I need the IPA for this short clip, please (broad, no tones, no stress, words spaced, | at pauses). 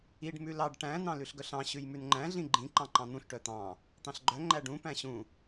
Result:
iɖ mʉlɑɖ ʈæ̃ nɑ̃lʉɬɡœɬɑ̃ ɕʉjmʉnŋ͡ǃæ̃ ɮĩɡ͡ǃĩ ǃɑ̃ǃɑ̃n̪ũɬ ʈœt̪ɑ̃ | t̪ɑ̃ɬɡ͡ǃœ ŋ͡ǃæɖũ pæ̃ɕũ